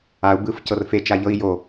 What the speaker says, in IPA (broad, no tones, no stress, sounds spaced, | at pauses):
a u̯ b ɯ f c ɤ r f e t͡ʃ a ʎ ɤ i̯ j o